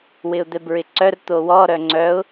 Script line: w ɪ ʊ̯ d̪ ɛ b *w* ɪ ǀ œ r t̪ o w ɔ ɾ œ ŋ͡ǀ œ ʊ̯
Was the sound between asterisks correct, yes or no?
no